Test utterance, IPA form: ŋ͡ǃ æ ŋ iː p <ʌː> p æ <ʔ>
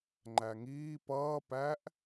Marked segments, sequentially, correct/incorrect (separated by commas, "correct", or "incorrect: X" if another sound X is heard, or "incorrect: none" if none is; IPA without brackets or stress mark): correct, correct